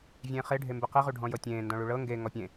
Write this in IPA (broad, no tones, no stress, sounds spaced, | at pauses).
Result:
vʲ ẽː χ e ɖʱ e m b e q i ʁ u ɖʱ ɔ̃ j ɤ tʲ ẽː n d ɔ̃ ɭ u ɭ ɤ ŋ ɡ e ŋ ɔ pʲ ẽ